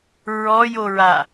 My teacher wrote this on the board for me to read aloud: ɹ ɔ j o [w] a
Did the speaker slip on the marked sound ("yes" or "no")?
yes